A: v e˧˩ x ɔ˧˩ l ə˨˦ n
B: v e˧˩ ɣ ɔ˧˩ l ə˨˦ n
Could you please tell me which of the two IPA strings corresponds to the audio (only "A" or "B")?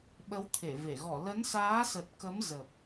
B